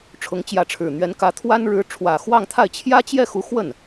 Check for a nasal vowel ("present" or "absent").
absent